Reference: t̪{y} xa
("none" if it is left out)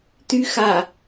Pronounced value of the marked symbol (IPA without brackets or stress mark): y